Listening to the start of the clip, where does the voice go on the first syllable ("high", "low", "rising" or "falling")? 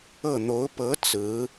falling